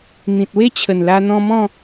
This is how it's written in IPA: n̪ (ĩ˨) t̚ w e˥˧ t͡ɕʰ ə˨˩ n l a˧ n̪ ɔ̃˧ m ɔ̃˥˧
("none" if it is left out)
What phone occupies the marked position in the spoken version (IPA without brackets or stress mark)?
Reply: ĩ˨